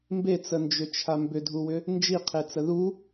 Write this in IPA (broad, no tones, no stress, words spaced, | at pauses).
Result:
mbet͡sənd͡ʒʏt͡ʃʰa mbʏdʱuwʏ | nd͡ʒiqʰet͡sə ðu